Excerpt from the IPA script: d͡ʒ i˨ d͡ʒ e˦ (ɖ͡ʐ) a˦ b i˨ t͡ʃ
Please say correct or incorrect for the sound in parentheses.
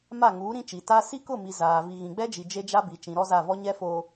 incorrect: d͡ʒ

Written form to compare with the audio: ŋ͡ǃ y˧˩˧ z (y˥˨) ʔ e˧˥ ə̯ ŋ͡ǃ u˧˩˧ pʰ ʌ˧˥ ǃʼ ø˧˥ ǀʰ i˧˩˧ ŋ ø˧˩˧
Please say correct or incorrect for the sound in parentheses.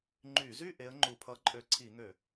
correct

